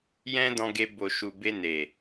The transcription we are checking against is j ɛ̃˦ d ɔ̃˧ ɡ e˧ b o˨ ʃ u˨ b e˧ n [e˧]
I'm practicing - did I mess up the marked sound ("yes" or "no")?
yes